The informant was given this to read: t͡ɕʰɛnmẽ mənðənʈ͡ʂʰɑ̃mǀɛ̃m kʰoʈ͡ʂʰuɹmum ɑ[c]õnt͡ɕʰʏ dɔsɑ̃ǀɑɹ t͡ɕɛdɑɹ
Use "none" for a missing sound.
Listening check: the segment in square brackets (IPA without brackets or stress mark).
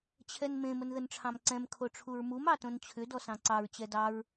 t